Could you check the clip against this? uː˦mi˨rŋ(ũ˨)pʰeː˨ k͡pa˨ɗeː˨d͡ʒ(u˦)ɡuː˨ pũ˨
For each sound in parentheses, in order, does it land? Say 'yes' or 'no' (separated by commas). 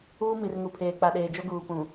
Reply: no, no